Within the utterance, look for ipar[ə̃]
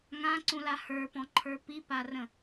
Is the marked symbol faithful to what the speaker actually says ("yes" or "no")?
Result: yes